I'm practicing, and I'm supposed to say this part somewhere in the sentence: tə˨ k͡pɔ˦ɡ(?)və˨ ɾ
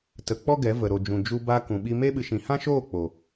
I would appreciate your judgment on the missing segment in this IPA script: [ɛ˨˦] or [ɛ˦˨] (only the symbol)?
ɛ˨˦